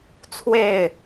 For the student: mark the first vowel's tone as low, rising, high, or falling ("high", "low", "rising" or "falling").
falling